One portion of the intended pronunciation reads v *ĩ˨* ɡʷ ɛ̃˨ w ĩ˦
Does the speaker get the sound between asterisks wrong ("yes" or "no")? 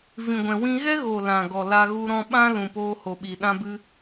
no